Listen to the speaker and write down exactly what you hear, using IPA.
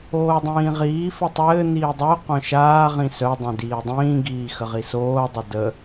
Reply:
oːdˤĩːʁiː fɘtˤɘː n̪iːdˤœ qœ̃ʃaː ʁĩsœ dˤœ̃diːdˤĩː ɡiːxəʁisoː dˤədə

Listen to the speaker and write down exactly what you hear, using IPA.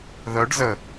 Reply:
ðœɖ zə

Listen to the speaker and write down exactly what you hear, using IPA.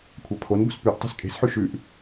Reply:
kʷʰapʰonbo̤s pʉʔ tˤe̤skʼe̤sħʉ ʃʉʔ

